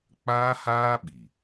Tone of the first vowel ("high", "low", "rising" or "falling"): high